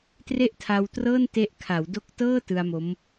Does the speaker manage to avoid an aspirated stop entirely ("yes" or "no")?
no